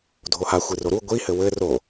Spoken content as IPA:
dʱoha xʷiroɾu ɡʷi hɘwɘ ro

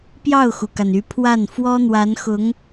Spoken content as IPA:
pjɑ˥˩ʊ̯xu˩ka˩n y˧˥pʰwa˥˩n fwɔ˥n̪wa˧˥nxʊ˧˥ŋ

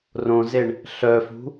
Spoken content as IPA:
rõzeɳ | ɬœfṳ

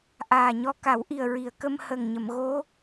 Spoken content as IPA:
ʔaː˨˩ɲɔ˧ ka˨˩˦wʔi˨˩ə̯ɹi˨˩˨ə̯ kə˧mhə˨˩ŋɲə˨˩˨mɣo˧˥

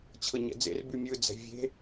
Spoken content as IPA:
t͡ɕʰɤɲɛ̰d͡zḛr bymʲɯ d͡zɛ̤ vʲe̤

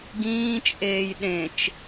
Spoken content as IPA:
ɡĩːt͡ʃʼeːj ɗẽt͡ʃ

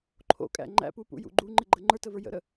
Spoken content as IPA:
ǃʰo̰kʼæ̰ ŋ͡ǃæ̰pupṵjṵ ɡ͡ǃuŋ͡ǃɪɡ͡ǃə ŋ͡ǃə˞təvə˞ jə̰ɾə

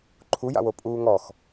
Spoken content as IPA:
ǃʰuja̰wo pʼuːŋɔx

